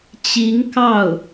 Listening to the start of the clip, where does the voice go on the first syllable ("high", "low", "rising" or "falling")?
rising